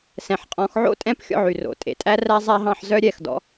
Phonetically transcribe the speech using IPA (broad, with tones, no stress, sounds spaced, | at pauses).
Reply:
s ɛ̃˩ ħ qʼ ɔ̃˩˧ x ʕ o̰˥ tʼ ɛ̃˥ p xʲ ɔ̰˧ ʕ y˩ r o̰˩ tʼ ḛ˩ tʼ æ˥ r æ˥ zˤ æ˥ ɦ ɑ̃˧ ħ z œ˥ ɾʲ ɛ˩˧ x d ɔ̰˧˥